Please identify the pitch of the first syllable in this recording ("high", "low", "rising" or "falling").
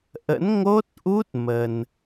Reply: rising